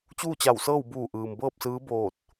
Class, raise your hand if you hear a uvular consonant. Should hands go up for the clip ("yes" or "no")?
no